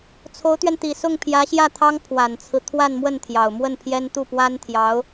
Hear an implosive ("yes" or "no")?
no